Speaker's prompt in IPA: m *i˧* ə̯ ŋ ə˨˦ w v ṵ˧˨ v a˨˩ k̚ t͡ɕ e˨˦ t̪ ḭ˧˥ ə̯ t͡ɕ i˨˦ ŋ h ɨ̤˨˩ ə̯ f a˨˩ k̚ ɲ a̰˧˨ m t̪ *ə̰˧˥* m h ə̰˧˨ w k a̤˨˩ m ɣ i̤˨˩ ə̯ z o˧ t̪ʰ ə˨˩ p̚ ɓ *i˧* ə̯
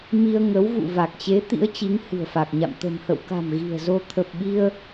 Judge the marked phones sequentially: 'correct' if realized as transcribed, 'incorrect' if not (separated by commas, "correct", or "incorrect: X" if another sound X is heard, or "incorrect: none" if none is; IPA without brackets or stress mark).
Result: correct, incorrect: ə̤˨˩, correct